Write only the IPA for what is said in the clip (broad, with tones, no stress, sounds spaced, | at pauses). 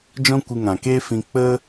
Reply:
d͡ʒ ɔ̃˦ kʷ ɨ˧ ŋ ã˨ k e˦ f ĩ˧ k͡p ə˦